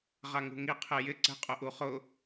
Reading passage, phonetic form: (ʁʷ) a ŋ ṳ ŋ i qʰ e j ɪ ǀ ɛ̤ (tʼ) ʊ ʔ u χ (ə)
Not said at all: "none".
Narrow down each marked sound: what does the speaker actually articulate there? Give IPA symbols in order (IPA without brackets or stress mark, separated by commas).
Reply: ʁ, qʼ, ʊ